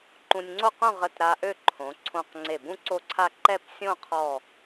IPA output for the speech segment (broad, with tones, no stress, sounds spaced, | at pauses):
ǃ ũ˧ nʲ ŋ͡ǀ o˥˧ q ũ˥˧ ʁ ə˧˩ t ɾ a˧ ʔ ø˥˧ ǃʰ õ˩˧ ǀʰ õ˧˩ q ŋ͡ǀ e˧˩ b ũ˥ ǀ o˥˧ ǀʰ a˥˧ ǃ ɛ˥˧ p sʲ õ˥˧ qʰ ɔ˧˩